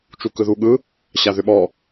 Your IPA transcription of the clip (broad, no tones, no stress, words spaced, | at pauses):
t͡ʃukɯðuɠɯ | ɕaðʏɓɔ